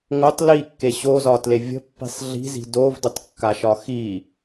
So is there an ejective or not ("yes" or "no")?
no